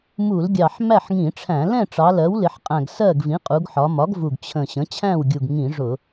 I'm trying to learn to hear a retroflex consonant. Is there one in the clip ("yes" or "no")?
yes